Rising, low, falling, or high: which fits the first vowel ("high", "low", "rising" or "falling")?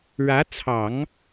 rising